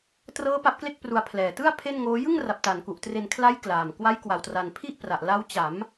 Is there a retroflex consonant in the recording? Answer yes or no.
no